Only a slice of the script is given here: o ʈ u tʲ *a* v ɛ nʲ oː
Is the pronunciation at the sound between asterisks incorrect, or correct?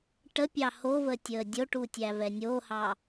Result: incorrect